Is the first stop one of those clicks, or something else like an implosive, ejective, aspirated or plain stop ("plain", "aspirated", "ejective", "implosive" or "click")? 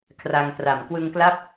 aspirated